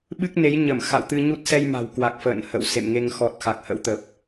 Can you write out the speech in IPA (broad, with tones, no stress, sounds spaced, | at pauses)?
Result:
ɓ ɨ˦˥ k̚ n e˨˦ j ɲ ə˧˩ m x a̰˧˨ w t̪ ɨ˧ ɲ u˦˥ t̚ s ɛ˧ j m a̤˨˩ w k w a˨˩ k̚ f ə̰ː˧˨ n h ə̰˧˨ w s ḛ˧˨ m ŋ e˧ ŋ x ɔ˨˩ t̚ x a˨˩ k̚ h ə̰˧˥ w t̪ ə˨˩ p̚